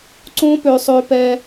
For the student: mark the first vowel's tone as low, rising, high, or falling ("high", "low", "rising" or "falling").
high